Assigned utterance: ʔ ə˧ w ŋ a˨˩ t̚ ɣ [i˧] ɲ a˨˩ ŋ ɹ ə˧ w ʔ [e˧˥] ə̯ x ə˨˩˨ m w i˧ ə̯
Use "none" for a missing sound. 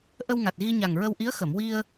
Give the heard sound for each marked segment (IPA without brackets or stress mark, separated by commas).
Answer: i˧, i˧˥